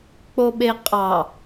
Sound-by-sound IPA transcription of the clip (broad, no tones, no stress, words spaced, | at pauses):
k͡poɓeqʼɑ